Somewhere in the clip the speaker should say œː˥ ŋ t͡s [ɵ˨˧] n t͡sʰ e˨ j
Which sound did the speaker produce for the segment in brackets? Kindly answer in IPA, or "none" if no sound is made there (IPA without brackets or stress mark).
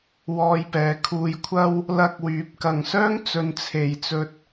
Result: ɵ˨˧